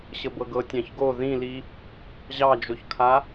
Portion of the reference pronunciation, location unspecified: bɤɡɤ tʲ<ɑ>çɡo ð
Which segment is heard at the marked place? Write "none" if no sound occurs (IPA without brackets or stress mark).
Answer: ɑ̃